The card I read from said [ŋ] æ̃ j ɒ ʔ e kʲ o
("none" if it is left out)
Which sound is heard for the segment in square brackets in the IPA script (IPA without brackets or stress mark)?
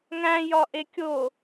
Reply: ŋ